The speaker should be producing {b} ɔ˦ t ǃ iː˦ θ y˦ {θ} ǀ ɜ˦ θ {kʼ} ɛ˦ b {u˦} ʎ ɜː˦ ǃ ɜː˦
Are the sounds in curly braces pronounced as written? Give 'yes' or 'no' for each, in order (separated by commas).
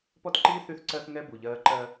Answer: no, yes, no, no